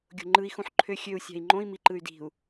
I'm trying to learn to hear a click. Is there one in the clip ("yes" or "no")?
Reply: yes